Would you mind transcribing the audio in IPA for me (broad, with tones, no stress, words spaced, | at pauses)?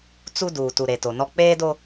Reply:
t͡su˦ duː˨tu˨ ɾe˨to˨nɔ˦ k͡peː˦do˦